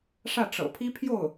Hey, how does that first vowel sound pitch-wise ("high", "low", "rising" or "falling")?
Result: falling